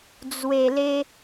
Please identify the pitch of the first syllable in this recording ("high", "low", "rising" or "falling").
low